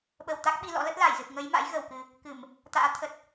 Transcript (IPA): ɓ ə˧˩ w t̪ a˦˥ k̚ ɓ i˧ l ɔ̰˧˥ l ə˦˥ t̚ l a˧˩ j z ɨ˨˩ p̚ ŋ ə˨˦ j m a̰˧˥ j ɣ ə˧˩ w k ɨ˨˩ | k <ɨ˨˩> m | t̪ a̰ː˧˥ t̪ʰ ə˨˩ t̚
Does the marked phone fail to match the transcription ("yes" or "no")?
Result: yes